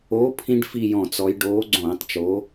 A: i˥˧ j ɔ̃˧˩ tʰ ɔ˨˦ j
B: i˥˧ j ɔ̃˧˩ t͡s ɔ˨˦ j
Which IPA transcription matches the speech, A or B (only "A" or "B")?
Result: B